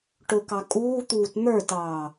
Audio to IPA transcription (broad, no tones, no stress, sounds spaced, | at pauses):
ʈ ʊ k ɑ kʼ uː t̪ uː t n̪ ə˞ t ɑː